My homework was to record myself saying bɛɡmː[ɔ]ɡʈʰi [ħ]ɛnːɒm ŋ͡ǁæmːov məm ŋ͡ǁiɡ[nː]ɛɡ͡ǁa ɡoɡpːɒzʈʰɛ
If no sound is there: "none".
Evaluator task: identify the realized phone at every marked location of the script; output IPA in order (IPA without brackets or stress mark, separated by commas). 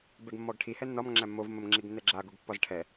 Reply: ɔ, h, nː